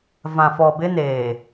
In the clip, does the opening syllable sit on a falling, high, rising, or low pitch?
low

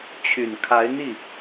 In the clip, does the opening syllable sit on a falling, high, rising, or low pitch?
low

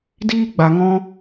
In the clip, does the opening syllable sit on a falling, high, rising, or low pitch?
high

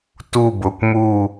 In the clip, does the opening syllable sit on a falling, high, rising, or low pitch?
falling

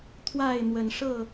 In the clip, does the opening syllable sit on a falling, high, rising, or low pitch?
falling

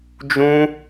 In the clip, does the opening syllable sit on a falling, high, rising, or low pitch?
high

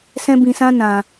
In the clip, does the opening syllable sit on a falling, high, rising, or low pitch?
high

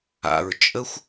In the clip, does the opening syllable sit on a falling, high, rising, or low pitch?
low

